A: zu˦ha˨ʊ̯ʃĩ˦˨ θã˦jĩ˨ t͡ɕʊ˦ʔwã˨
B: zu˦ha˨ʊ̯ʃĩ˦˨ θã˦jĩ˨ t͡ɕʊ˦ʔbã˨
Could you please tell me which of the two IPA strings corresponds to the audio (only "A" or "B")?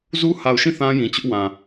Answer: A